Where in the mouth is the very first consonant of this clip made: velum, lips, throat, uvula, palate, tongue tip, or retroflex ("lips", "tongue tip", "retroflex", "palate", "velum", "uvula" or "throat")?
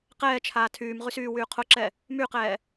uvula